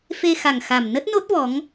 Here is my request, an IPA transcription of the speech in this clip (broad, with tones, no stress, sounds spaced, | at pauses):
f e˧ x a˨˩ ŋ x a˨˩ m n ə˦˥ t̚ n o˦˥ t̚ v ɔ˨˦ ŋ